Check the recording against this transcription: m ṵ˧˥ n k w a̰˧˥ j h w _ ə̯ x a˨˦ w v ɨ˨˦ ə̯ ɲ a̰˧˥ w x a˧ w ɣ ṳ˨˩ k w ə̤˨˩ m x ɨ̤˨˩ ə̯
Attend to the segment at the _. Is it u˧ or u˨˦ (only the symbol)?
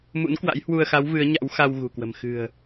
u˧